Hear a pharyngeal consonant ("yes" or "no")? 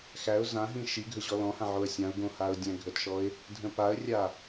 yes